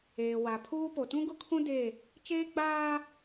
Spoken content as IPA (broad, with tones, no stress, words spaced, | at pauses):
eː˨wa˨pʰuː˦ po˨tũ˦ɡʊ˦kʰũ˦ de˦˨ | t͡ʃeː˦ɡ͡baː˦